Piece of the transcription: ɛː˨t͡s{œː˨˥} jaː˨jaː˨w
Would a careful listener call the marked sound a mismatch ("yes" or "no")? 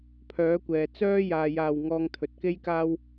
yes